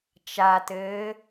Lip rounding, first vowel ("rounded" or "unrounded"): unrounded